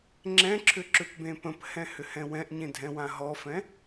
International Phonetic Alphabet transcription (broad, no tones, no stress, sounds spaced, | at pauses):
ŋ͡ǁ ɛ̃ ǁʰ ʏ ǁ ʏ p b ẽ p ə̃ p h ɛ̃ h ʏ h ɛ̃ w ɛ̃ ʔ ɲ ẽ dʱ ɛ̃ w ã ɦ ɔ f ɛ̃